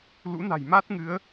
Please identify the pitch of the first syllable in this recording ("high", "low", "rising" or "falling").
rising